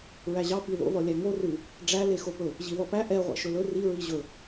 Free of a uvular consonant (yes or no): no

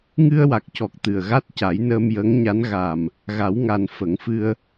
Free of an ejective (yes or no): yes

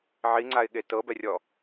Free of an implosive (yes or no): no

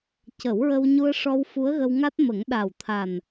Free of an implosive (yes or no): no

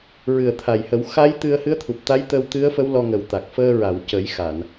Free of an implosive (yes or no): yes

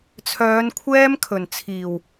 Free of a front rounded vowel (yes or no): no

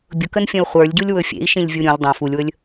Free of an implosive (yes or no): yes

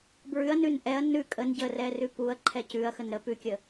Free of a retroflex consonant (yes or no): yes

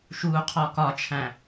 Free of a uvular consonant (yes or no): no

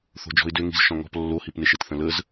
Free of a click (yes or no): yes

